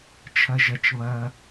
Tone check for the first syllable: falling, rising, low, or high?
low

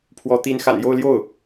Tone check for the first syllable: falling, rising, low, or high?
rising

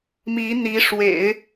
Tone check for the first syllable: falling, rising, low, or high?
rising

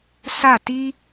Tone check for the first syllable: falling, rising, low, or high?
falling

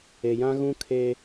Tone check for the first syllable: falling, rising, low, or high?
low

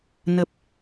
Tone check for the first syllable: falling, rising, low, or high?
low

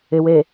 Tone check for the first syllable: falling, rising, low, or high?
low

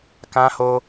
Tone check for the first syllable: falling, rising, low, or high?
high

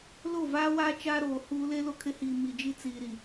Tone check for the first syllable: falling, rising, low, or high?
falling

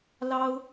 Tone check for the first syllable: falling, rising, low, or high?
high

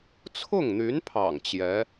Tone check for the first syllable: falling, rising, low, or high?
falling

